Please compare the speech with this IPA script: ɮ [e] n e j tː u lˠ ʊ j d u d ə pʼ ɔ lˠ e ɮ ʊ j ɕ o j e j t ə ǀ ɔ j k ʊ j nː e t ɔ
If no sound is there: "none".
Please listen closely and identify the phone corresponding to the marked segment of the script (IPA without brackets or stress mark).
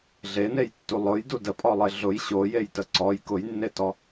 e